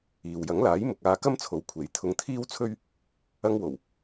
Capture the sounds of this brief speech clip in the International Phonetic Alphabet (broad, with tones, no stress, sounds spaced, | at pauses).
iː˨ w j ɐ˨˥ ŋ l aː˨˥ j m ʊ˨ k̚ aː˧ k ɐ˥ m t͡sʰ o˨˧ w kʷʰ e˨˥ j t̪ʰ ʊ˧ ŋ t̪ʰ iː˥ w t͡sʰ ɵ˥ ɥ | ɐ˧ ŋ w o˨˩ w